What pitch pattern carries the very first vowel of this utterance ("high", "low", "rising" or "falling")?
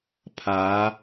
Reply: rising